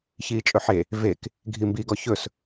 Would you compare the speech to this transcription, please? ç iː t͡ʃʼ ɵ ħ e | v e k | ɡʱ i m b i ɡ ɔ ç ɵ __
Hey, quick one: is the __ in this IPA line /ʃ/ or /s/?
s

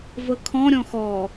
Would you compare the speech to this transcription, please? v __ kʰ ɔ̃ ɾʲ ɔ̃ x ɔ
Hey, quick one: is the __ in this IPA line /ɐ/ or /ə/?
ə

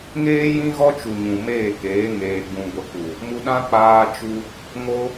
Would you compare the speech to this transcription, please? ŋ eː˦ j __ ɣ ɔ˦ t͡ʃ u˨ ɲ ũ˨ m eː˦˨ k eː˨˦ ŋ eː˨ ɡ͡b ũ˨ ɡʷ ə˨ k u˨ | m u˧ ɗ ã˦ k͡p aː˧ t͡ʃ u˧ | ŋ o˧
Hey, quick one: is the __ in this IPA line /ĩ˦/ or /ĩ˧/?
ĩ˦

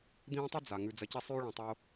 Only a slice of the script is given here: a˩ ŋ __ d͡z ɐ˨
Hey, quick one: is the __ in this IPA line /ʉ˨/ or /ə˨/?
ʉ˨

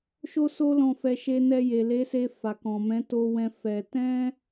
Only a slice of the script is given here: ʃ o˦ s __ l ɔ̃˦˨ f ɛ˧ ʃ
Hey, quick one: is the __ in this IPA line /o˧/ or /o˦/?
o˦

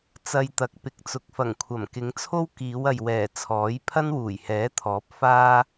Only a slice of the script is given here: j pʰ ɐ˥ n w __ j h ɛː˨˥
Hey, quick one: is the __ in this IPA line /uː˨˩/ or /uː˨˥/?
uː˨˩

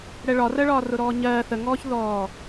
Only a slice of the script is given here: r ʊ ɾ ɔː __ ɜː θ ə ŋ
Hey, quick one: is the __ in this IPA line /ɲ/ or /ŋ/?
ɲ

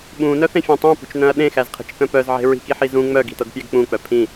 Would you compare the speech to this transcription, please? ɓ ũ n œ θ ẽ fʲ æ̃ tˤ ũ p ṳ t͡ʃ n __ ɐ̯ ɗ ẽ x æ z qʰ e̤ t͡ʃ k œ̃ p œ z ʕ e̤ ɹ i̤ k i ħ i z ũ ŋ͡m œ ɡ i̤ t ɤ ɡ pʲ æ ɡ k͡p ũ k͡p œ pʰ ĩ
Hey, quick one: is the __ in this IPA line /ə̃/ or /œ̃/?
œ̃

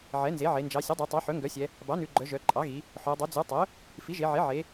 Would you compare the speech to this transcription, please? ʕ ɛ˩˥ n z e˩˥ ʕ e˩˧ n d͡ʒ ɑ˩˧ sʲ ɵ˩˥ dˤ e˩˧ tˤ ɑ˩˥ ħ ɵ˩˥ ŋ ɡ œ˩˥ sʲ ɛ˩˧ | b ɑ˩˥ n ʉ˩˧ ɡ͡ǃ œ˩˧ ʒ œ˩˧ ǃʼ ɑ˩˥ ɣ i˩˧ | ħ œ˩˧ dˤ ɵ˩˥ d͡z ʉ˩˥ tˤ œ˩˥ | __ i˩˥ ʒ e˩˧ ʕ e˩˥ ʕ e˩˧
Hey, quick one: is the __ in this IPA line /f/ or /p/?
f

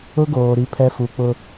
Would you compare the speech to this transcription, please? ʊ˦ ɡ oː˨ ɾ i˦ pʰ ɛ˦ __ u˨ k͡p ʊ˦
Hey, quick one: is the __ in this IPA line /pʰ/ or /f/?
f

